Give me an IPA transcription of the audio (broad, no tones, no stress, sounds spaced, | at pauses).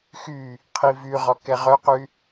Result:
x y | qʰ i v y ʁ ɔ k ɛ ʁ œ q y